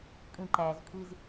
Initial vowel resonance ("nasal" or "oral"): nasal